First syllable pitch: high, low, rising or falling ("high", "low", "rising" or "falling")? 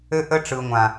high